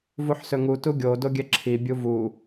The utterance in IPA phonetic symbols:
vuħsɵŋu tuɡʲo doɡʲɛǁʰi bʲuvu

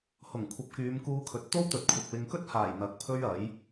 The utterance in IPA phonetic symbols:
hʊ˨˩ŋ kʷʰɐ˨˥p̚kyː˨˧mkuː˧kʰɵ˨˥t̚ t̪o˥wt̪ɵ˨t̚ kʷʰɪ˨k̚wɪ˧ŋ kɵ˥t̚haː˨˩j n̪ɐ˨˥k̚pʰɵ˥ɥɐ˨˥j

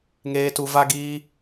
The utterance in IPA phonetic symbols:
ŋeː˧tu˧va˦ ɡiː˦

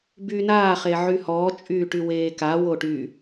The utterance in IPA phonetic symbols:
byːnaː χeʕyhɔː t͡ʃʼyːʈyweːka woʈy

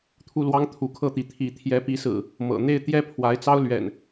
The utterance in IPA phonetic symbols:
t̪ʰu˥˨lwɑ˦ŋ t̪ʰu˨˦kʰɤ˥˨t̪i˨˦ t̪ʰi˨˦ t̪ʰjɛ˨˦pi˨˦sɹ̩˨˩ | mɤ̰˨˩n̪e˥˨ɪ̯ t̪jɛ˦pʰwa˨˦ɪ̯t͡sɑ˦ʊ̯ lɥɛ̰˨˩n

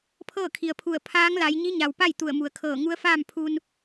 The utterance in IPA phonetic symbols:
pʰɤː˥˨kʰi˩ə̯pʰu˧˩ə̯ pʰaː˧˥ŋla˩˧j ɲi˧˥ɲa˩wpa˥˨j t̪u˧˩ə̯mu˩ə̯kʰɤː˧˩ ŋu˧˥ə̯faː˥˨m pʰu˧n

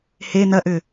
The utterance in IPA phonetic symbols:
he nɐʔʏ

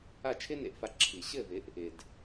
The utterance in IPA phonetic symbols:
a˥˩t͡ʃʰɪ˥nḛ˧ʔfa˧ ǁʰi˩ɕɘ˥˩vɪ˩˥ʔ | ɪ˩d

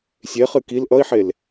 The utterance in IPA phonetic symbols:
sʲeχɨ kil ʔʌi̯ħel

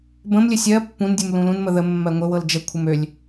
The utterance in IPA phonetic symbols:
bə̃mlʲɘ sʲɜ pːũndʲum lũlũnmə ðə mːɜŋʷɘwɤl d͡ʒəkʷʰəm ølʲ

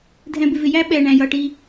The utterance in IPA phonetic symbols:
dʱɛ̃˨bɪ˨vɪ˨jæ˦ ɓɛ˨ ɳæ̃˨jʌ˨ ʈi˦

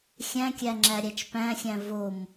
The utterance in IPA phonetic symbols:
xʲæ̃kʲæŋ͡ǁæ ɾʲæt͡ʃpæ̃xʲæ̃ vom

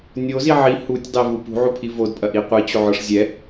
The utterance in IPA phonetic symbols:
nʲozi ʕi hutʲdˤevu pṳʕupʰi vodpʼɐʔi qʷit͡ɕoʕɔʂ zʲɛ

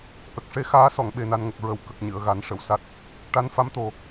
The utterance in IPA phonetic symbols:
ʔə˨˩k̚ʂe˧˥ xaː˧˥sɔ˨˩˨ŋ ɓe˨˩na˨˩nŋə˨˩k̚ ɹə˨˩˨w kə˨˩k̚ ɲɨ˨˩˨ə̯ɣa˨˩˦nʂə˨˩˨wsa˦˥t̚ | ʈa˧˥nfa˧˥mt̪o˨˩

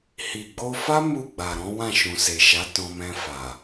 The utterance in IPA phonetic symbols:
hi˨ɡ͡bo˧fa˦ mu˦˨ɡ͡ba˨ɾɔ̃˨˦ wã˦˨ʃũ˨se˨ʃa˨˦ tɔ̃˧mɛ̃˧fa˨

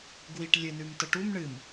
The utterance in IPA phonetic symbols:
ɡwiʈ lʲɨnʉm təʈum ɳɨm

